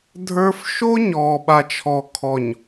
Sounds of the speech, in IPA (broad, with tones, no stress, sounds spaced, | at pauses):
dʱ ə˞˦ f ʃ o˦ ɲ ɔː˨ ɓ a˨ t͡ʃʰ ɔ˨ kʰ ɔ˨ ɲ